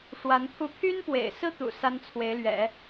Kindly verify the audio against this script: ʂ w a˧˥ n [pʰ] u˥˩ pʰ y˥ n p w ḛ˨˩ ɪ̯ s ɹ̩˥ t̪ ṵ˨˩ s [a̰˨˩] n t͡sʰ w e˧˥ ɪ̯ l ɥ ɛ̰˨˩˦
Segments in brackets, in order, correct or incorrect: correct, incorrect: a˥

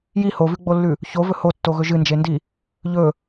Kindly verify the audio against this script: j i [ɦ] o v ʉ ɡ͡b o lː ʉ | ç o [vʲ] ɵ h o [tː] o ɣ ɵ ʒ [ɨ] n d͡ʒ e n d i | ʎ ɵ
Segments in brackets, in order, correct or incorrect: incorrect: h, incorrect: v, correct, correct

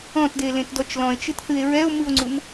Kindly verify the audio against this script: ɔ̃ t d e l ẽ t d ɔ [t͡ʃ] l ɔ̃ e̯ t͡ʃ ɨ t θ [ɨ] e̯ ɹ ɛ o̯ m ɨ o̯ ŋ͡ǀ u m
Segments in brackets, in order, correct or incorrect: correct, correct

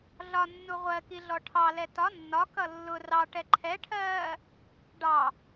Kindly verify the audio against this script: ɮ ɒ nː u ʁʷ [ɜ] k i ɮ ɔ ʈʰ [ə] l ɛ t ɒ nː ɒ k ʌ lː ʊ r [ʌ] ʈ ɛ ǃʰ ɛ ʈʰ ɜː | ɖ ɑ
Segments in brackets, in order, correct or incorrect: correct, incorrect: ɑ, incorrect: ɑ

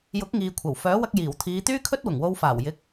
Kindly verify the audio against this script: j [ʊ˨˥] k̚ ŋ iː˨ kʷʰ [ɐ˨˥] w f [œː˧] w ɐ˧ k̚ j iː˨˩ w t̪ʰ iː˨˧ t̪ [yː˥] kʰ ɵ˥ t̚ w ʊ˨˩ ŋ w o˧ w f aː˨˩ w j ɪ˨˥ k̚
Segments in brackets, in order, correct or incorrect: correct, incorrect: ɐ˨˩, incorrect: œː˨˥, correct

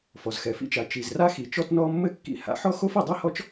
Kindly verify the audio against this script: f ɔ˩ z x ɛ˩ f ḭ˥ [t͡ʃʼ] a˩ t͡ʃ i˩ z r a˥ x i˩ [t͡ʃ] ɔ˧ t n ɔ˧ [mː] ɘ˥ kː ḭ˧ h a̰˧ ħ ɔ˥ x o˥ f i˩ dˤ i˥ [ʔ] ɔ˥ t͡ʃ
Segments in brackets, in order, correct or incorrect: incorrect: t͡ʃ, correct, correct, incorrect: h

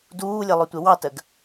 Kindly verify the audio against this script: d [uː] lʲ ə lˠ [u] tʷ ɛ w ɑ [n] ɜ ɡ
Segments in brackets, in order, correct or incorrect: correct, incorrect: ʊ, incorrect: t

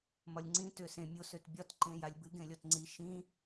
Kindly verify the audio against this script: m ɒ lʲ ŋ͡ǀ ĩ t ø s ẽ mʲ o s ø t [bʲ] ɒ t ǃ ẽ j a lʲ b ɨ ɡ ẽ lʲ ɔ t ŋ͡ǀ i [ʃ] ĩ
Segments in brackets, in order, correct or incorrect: correct, correct

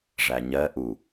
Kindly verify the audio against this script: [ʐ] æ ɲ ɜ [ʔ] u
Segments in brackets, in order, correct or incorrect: correct, correct

